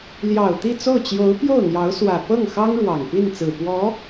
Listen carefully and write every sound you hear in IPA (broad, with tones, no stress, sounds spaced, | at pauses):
l j ɑ˨˩ ʊ̯ t̪ i˥˧ t͡s o˥˩ ʊ̯ t͡ɕ j o˧˥ ʊ̯ p j o˥˩ ʊ̯ n̪ j ɑ˧˥ ʊ̯ s w ä˨˩ p ɤ˥˩ ŋ x ɑ˥ ŋ ɻ w ɑ˨˩ ŋ p i˥˩ n t͡s ɹ̩˨˩ p w ɔ˧˥